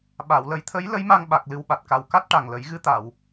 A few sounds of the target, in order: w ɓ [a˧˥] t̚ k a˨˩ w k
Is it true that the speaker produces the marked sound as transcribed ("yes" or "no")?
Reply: no